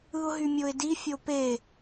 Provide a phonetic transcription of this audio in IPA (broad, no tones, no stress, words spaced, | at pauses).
ɯʊ̯ɦymʲoɪ̯di fʲope